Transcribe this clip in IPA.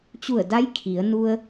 t͡ɕ u˧˩ ə̯ d a˧˥ j kʰ i˩˧ ə̯ n u˧ ə̯

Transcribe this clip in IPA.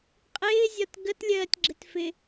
qʼ ɪː zʲ ɒ t ɡ ə t lʲ ɜː tʲ ɡ͡ǁ ɪ t f ɪ

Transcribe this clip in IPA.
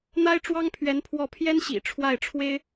n̪ a˥ ɪ̯ ʈ͡ʂ w ɑ˥ ŋ pʰ ɥ ɛ˧˥ n pʰ w ɔ˥˩ pʰ j ɛ˥ n ɕ ḭ˨˩ ʈ͡ʂʰ w a˥˩ ɪ̯ ʈ͡ʂʰ w e˥ ɪ̯

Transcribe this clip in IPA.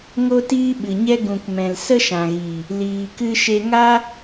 ŋ o˦ t iː˦ ɓ ɨ˨ ɲ ɛ˦ ɡ ũ˨ k m ɛ̃˨ l s ə˦ ʃ ã˨ ɣ i˨ | l iː˨ k ɨ˧ ʃ e˧ ŋ a˦

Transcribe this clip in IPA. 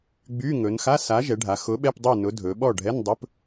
ɡ͡b y˧˥˧ ŋ ɵ˩˧ n x a˧˥˧ s a˨˥ ʒ ɛ˩˧ ɖʱ a˩˧ x ʊ˨˥ ɓ ɛ˧˥˧ p dˤ y˥˨ n ʊ˨˥ dʱ ɵ˩˧ ɓ ɔ˥˨ ɖʱ ɛ˧˥˧ n dˤ ɵ˧˥˧ p

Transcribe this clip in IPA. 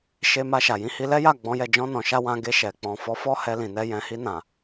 ʃ e˧ m a˧ ʃ a˨ j ĩ˨˦ h i˧ l ɛ˦ j a˦˨ ɡ͡b ɔ̃˨˦ j ɛ˦˨ d͡ʒ ɔ̃˧ n ɔ̃˨ ʃ a˧ w ã˧ ɡ e˧ ʃ ɛ˨ k͡p ɔ̃˨ f ɔ˨˦ f ɔ˦ h ɛ˧ l ĩ˨ n ɛ˧ j ɛ̃˨ h i˧ n ã˨

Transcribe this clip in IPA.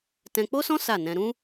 t ɛ̃˧ k͡p o˦ s ɔ̃˦ s a˦˨ n ɛ̃˧ ɾ ũ˦

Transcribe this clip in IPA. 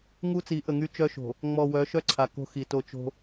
ŋ u˦ t͡s i˨˦ ʔ ə˨ ŋ y˦ t͡ʃ œ˦ ʃ o̤˨ | ŋ͡m ɔ˨ w œ˨˦ ʃ œ˦ ǀʰ a˨ k o̤˦ x i˨ t o˨ t͡ʃ o̤˦

